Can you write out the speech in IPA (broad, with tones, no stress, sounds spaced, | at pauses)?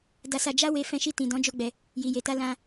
d a˧ s a˧ d͡ʒ a˦ w e˧ f ɛ̃˧ ʃ i˧ t ĩ˨ d ɔ̃˨˦ d͡ʒ o˧ ɡ͡b ɛ˨ | j i˨ j e˨ t a˧ l ã˧